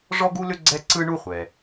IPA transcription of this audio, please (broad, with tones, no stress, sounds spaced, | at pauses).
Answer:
ʐ ɔ˥ ɡ u˥ l ʏ˥ ɡ͡ǀ ɛ˥ ǀ ɯ˥ ɳ u˥ χʷ ɛ˩